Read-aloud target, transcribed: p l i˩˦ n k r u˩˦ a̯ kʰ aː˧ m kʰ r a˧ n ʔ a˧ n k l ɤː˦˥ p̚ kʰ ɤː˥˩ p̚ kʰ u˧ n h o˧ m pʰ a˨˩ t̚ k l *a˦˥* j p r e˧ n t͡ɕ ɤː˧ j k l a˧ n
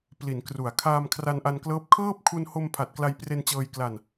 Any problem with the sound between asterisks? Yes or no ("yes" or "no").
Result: yes